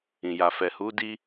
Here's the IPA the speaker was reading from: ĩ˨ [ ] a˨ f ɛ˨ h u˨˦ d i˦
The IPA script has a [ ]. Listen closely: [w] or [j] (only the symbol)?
j